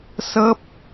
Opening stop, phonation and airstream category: plain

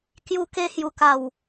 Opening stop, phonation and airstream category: plain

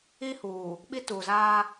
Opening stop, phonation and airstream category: implosive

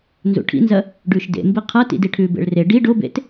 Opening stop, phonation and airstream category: aspirated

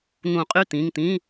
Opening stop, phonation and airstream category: ejective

